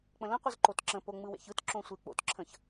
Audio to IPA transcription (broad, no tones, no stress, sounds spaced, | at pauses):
k͡p ə̃ l ə̃ qʷ ɯ z ǃ o t ǁ ə̃ p o ŋ͡m ɯ w ḛ ç ɯ t ǁ õ sʷ e k͡p o̰ t ǁʰ ə̃ ç